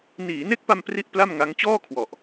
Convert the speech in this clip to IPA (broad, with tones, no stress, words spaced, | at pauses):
niː˩˦ne˦˥k̚pa˧m pri˦˥ʔ pla˥˩mŋa˦˥ŋ t͡ɕɔː˥˩kʰwɔ˨˩ʔ